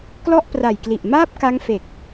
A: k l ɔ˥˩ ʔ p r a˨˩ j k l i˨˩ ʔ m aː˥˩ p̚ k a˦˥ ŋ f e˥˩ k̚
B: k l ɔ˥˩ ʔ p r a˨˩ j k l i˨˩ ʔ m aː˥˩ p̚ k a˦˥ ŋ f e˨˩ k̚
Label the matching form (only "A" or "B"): B